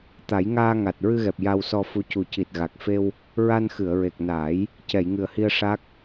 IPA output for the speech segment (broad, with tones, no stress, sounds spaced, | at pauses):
t̪ a˨˩˦ j ŋ aː˧ ŋ a˨˩ t̚ ɹ ɨ˧ ɣ ɛ˨˩ p̚ j a˧ w s ɔ˧ f u˧˥ c u˨˩ c i˨˩ t̚ ɣ a˨˩ k̚ f e˧ w | ɹ a˧ n x ɨ˨˩˨ ə̯ ɹ e˨˩ k̚ n aː˨˩˦ j | c ɛ˨˩˨ j ŋ ɨ˨˩ ə̯ h i˧ ə̯ ʂ a˦˥ k̚